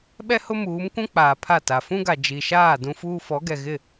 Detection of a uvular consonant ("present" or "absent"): absent